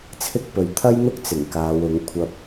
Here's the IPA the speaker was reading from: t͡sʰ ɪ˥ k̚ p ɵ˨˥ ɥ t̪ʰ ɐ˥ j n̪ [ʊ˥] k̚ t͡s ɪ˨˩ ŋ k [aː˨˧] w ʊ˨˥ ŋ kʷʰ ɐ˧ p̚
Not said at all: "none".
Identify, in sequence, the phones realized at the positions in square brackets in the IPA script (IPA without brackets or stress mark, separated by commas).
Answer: ʊ˥, aː˨˧